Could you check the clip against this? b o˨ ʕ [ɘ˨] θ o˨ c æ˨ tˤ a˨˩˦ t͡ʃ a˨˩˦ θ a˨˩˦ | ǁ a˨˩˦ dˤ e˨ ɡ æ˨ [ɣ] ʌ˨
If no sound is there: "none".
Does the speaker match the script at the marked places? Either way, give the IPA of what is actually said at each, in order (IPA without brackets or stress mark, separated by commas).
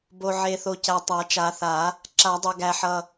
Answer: e˨, ħ